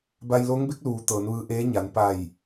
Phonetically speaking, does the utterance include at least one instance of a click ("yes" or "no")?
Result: no